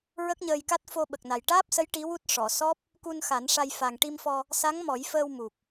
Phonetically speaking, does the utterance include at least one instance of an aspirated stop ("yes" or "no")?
no